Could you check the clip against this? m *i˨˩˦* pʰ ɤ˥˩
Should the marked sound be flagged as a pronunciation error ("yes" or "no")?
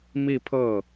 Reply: yes